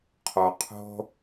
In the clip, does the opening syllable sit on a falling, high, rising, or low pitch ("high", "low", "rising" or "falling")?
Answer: low